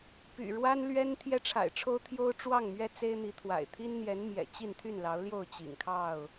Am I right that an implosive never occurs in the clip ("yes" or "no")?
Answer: yes